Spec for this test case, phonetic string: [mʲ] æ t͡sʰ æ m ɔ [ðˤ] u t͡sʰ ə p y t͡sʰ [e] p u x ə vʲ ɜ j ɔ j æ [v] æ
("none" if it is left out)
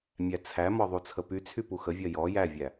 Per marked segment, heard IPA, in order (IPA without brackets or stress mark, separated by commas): mʲ, ðˤ, y, vʲ